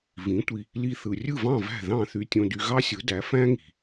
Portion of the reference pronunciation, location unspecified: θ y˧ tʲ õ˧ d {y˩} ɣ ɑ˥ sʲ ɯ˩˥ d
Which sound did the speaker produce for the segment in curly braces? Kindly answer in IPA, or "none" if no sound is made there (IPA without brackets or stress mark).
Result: y˧